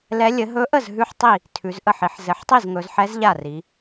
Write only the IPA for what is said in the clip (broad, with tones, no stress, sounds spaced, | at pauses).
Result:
l ɛ˧˥ lʲ ɘ˩˧ ɦ ɵ˧˥ ʔ ə˥˩ z ɦ ʉ˥˧ ħ tˤ i˥˩ | tʰ ʉ˩˧ z ʔ ə˥˩ ħ i˩˧ ħ z ɘ˩˧ ħ tˤ i˥˩ z ŋ ɵ˩˧ z ħ ɛ˧˥ z ʎ a˥˩ r i˩˧